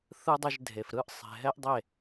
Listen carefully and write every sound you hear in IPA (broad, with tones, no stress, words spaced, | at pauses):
θɯ˦dˤɯ˧ʒdʱe˨f ɾɯ˦˨ʔ sˤe̤˨ɦɛ˦ʔdˤe˦˨